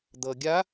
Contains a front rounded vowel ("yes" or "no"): no